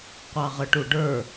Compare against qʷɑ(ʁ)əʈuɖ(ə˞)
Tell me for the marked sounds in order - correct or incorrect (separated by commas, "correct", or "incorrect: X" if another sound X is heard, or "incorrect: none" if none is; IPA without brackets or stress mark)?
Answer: correct, correct